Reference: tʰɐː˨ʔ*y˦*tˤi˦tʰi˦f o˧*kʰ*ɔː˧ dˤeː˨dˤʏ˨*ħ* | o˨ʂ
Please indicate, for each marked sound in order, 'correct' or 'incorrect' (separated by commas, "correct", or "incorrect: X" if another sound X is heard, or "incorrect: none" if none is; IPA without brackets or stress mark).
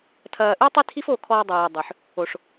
correct, correct, correct